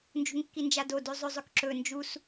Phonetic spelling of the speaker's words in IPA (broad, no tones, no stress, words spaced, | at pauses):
nd͡ʒṳŋkːind͡ʒado dʉzˤʉzˤʉkǁɵ nd͡ʒus